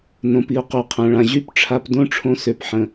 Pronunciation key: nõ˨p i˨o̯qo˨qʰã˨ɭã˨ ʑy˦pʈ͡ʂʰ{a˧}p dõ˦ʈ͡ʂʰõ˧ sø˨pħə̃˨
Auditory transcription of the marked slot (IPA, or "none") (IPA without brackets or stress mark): a˧